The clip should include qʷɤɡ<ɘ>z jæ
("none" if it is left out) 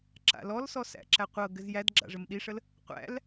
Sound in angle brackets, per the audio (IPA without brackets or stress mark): ɘ